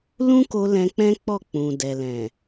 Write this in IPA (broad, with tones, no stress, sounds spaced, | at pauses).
l ũ˦ k o˧ l ɛ̃˧ k͡p ɛ̃˦ k͡p ɔ˦˨ k͡p ũ˨ d ɛ˨ l ɛ̃˨